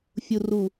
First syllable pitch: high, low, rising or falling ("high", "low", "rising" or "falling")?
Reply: low